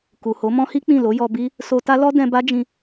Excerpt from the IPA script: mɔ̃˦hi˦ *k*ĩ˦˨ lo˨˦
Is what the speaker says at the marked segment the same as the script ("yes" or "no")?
no